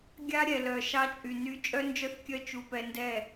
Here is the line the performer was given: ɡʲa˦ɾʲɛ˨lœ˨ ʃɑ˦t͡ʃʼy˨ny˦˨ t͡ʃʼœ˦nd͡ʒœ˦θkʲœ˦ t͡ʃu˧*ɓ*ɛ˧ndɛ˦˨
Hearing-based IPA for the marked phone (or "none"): p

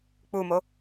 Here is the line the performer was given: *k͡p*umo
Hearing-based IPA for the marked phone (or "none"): k͡p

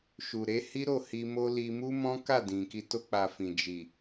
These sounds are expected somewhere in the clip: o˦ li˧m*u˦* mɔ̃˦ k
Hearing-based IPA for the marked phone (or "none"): u˦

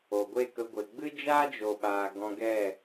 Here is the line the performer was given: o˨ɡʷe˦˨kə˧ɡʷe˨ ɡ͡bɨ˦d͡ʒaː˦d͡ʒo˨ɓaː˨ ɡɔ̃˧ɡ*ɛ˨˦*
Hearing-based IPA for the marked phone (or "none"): ɛ˦˨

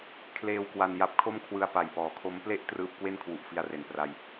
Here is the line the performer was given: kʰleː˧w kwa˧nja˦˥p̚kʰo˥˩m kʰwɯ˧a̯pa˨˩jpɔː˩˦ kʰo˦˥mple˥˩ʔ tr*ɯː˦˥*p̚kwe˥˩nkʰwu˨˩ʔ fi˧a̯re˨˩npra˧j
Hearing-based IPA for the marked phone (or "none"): ɯː˦˥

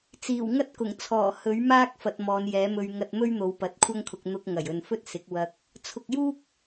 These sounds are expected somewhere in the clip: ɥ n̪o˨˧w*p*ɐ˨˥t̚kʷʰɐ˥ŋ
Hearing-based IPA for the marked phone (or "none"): p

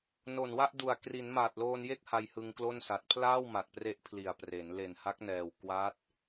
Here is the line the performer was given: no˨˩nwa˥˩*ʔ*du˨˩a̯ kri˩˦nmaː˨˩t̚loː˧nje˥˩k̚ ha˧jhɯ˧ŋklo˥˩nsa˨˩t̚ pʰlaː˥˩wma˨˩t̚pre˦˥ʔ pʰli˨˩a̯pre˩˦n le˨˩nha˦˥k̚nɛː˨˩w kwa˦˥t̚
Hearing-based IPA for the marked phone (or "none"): ʔ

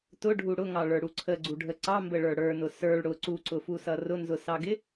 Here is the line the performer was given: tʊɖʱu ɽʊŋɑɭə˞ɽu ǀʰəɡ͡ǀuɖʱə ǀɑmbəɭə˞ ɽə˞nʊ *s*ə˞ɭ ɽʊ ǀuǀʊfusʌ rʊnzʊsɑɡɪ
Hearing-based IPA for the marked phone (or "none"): s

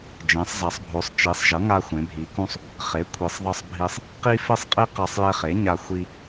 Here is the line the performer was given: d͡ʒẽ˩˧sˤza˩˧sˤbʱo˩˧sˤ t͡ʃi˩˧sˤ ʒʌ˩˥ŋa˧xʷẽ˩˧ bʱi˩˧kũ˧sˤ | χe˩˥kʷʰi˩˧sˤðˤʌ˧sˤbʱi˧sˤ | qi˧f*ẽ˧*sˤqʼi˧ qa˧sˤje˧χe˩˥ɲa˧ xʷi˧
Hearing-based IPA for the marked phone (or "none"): e˧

